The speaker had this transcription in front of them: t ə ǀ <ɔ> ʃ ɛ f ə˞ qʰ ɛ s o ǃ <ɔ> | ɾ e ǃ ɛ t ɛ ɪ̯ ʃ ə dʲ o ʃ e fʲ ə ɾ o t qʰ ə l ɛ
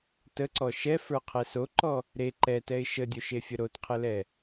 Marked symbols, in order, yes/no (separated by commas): yes, yes